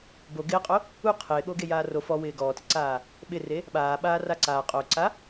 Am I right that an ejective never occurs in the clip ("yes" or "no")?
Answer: no